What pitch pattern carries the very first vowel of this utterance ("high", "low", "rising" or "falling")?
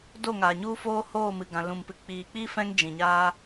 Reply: falling